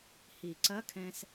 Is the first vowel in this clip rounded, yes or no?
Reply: no